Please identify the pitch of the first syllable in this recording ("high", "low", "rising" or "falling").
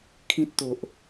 high